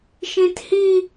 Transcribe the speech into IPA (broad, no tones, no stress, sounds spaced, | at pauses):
ʃ ĩ t h i